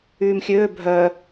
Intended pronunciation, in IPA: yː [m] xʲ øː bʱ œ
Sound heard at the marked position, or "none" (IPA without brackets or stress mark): m